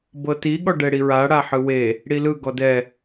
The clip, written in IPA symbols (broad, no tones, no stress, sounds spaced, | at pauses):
b ɤ t i ɠ ɔ ɖ ɛ ɽ i ɹ a ɽ a ħ ɯ w e | ɽ i l ɯ ɡ ɔ d ɛ